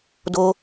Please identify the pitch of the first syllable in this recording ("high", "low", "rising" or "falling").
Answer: high